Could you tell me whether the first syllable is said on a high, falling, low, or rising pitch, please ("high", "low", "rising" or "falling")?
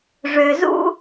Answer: low